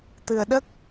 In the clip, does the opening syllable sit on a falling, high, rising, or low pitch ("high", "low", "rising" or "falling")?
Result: low